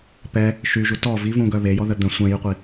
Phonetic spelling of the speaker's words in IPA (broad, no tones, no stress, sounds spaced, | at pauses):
p ɛ | ʃ y ʒ u t ɔ v i v ũ ɡ œ β e j ɔ ð ə d̪ ə̃ sʷ ɛ̃ j y qʷ i